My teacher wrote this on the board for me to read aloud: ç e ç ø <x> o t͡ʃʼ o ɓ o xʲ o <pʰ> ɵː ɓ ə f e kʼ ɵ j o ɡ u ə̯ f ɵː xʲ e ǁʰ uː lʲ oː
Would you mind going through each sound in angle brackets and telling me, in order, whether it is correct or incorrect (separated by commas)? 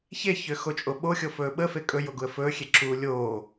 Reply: correct, incorrect